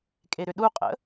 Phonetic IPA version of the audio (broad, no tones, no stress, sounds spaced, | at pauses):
kʼ e ɾ ʏ ɗ u qʼ ə̰